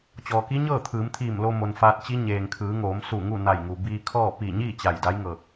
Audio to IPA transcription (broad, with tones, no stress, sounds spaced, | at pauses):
t͡ɕ ɔː˩ k i˧˥ ɲ ɤː˥˨ t̪ʰ ɯː˩˧ m t̪ʰ iː˧˩ m l o˧ m o˩ n f aː˧ t̚ t͡ɕ i˧˥ ɲ eː˩ ŋ kʰ ɯː˩˧ ŋ oː˩˧ m s u˧˩ ŋ u˥˨ n a˧˩ j ŋ u˩ b iː˧ kʰ ɔː˥˨ p i˧˩ ɲ iː˥˨ t͡ɕ a˧˩ j d a˧˥ j ŋ ɤː˧˩ k̚